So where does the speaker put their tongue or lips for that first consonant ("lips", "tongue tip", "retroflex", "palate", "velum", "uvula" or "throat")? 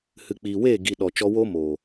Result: throat